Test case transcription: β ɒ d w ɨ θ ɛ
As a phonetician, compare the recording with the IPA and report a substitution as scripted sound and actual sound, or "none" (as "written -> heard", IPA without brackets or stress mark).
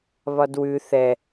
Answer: ɨ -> ʉ